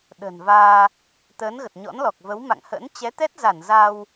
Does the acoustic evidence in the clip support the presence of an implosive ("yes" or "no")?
yes